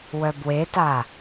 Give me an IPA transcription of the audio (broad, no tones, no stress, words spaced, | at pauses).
wœbweta